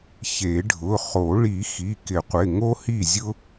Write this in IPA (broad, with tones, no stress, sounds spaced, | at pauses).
ç e˨˩˦ ɖʱ ʊ˩˧˩ χ o˨˩˦ ɭ i˨˩˦ x i˩˧˩ k ɪ˨˩˦ qʷ ɪ˩˧˩ ŋ o˥ h i˥˩ zʲ ʊ˥